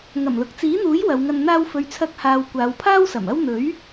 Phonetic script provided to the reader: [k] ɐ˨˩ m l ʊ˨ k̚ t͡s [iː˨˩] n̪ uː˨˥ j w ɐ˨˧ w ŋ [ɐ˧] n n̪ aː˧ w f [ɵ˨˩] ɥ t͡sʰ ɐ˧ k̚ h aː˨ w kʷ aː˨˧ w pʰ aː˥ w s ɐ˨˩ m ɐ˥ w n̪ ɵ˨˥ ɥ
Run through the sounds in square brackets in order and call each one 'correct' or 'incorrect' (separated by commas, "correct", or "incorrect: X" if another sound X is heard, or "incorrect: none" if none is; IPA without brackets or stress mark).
incorrect: ŋ, incorrect: iː˨˥, correct, incorrect: ɵ˨